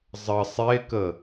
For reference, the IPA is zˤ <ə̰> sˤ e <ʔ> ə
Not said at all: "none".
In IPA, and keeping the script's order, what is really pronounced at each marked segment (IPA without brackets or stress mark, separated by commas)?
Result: ə, k